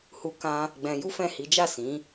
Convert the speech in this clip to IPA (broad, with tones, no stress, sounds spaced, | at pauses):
h u˧ k ã˧ | ɡ͡b ɛ̃˧ j u˦ f ɛ̃˦˨ h i˨˦ d͡ʒ a˦˨ s ĩ˨˦